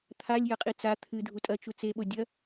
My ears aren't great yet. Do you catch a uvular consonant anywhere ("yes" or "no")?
yes